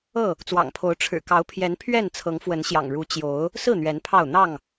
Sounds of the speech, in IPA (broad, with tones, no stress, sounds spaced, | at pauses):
ɤ˥˨ | t͡s w ɑ̰˨˩ ŋ pʰ o˨˦ ʊ̯ ʈ͡ʂʰ ɻ̩˨˩ k ɑ˨˦ ʊ̯ pʰ j ɛ˨˦ n pʰ ɥ ɛ˥˨ n t͡sʰ ɤ˨˦ ŋ f w ə˨˦ n ɕ j ɑ̰˨˩ ŋ ɻ u˨˦ t͡ɕ j o˨˦ ʊ̯ | s ɹ̩˥˨ n̪ ɥ ɛ˨˦ n pʰ ɑ˥˨ ʊ̯ n̪ ɑ˥˨ ŋ